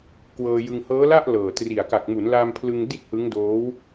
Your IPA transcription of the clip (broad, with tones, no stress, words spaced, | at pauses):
kwɤː˧jɯ˧ŋ hɤː˦˥la˥˩ʔ lɤː˨˩tri˨˩a̯ ka˨˩k̚mu˩˦n la˧mpʰlɯ˧ŋ di˥˩t̚hɯ˦˥ŋdoː˦˥w